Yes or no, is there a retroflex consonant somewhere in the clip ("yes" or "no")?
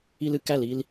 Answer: no